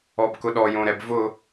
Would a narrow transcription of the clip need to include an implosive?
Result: yes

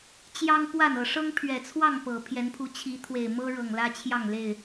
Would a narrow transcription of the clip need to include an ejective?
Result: no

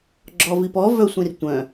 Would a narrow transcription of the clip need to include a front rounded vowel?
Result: yes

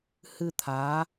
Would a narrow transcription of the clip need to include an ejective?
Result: no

